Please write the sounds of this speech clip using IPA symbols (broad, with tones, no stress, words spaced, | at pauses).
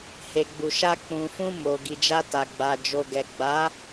he˨ɡ͡bu˨ʃa˧ k͡pũ˨fũ˧ mo˨ ɡi˨d͡ʒa˧ta˨ɡ͡ba˨ d͡ʒo˨ɡɛ˨ɡ͡ba˨˦